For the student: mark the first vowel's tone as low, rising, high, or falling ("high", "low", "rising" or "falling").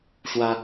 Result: high